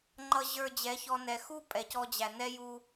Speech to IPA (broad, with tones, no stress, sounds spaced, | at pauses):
ŋ͡ǃ ʌ˨ ʑ ə˞˨ d͡ʑ ɛ˨˦ ç ɔ˧ n ɛ˨ x u˦ pʼ ɛ˨ c ɔ˧ d͡ʑ æ˨ n ɛ˦ j u˧